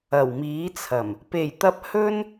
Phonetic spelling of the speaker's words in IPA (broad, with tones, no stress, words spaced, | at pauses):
ɐ˨˩wmiː˨˥t͡sʰɐ˨˩m | pe˨˩jt̪ɐ˧p̚ hɵ˥n